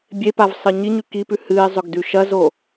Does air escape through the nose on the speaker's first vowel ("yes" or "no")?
no